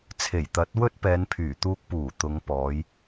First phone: t͡sʰ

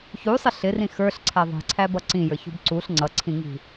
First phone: ç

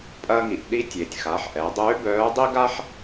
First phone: pʼ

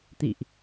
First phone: t̪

